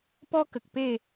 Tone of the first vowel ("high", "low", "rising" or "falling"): high